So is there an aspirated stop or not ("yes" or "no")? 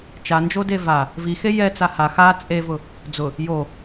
no